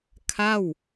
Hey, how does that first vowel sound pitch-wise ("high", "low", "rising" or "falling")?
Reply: falling